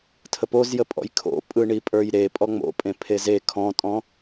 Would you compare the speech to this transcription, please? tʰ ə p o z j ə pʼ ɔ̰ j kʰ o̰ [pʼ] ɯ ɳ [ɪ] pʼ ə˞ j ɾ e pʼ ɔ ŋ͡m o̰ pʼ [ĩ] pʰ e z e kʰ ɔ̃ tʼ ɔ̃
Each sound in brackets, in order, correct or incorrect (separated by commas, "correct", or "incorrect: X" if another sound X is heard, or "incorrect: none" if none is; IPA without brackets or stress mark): correct, incorrect: i, incorrect: ẽ